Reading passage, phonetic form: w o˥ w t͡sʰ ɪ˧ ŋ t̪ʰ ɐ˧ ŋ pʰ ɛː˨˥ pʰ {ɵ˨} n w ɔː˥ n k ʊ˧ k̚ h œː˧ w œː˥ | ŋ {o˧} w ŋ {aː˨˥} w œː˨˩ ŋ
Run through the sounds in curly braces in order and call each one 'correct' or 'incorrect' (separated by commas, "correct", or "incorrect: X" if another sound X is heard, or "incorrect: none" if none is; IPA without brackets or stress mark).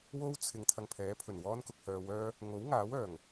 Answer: incorrect: ɵ˨˩, incorrect: o˨˥, correct